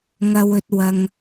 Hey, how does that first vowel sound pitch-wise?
low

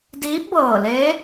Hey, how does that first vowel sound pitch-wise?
rising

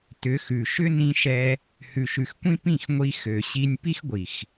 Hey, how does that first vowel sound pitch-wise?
rising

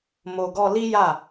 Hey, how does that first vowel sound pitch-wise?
low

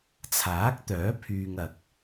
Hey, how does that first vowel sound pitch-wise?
rising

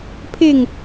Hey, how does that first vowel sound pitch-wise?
falling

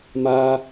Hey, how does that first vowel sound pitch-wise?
high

